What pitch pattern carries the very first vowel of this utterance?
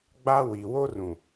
high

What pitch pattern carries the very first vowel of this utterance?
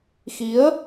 rising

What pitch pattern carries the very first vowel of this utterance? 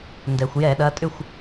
low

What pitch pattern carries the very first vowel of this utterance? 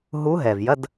rising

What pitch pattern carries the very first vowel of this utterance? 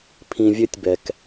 low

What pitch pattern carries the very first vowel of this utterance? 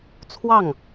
falling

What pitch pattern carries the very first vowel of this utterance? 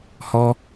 high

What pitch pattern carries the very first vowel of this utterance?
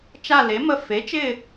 falling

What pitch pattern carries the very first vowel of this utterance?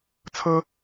high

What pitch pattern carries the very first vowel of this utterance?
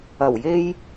low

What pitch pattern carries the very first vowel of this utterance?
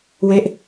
falling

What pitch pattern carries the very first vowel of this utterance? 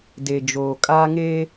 low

